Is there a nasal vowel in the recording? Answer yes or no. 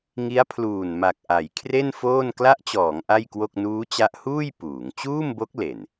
no